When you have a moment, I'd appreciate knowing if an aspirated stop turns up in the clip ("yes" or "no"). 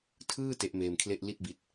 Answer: yes